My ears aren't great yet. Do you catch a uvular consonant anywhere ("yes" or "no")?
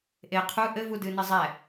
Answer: yes